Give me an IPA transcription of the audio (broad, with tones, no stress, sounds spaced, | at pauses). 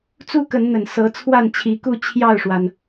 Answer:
t͡s u˦ k ə˨˦ n n̪ ə˨˩ n s ɤ˨˦ t͡sʰ w a˥˨ n t͡ɕʰ i˨˦ k u˥˨ t͡ɕʰ j ɑ˥˨ ʊ̯ ʂ w a˩ n